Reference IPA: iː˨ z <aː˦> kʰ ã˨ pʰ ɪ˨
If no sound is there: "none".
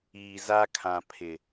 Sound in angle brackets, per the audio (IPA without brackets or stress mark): a˦